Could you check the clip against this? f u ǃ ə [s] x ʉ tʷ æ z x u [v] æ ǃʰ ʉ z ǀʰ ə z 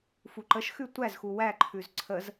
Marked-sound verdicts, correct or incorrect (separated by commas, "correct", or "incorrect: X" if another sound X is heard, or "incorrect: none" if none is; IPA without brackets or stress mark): incorrect: ʃ, incorrect: w